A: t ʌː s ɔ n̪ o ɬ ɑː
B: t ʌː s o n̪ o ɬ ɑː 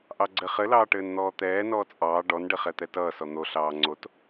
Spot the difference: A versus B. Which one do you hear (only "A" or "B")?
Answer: A